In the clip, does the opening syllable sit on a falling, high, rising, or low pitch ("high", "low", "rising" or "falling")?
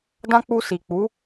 high